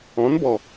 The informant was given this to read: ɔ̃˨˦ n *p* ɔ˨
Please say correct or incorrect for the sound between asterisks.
incorrect